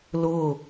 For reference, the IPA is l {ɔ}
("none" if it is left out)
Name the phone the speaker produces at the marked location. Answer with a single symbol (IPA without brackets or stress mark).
ʊ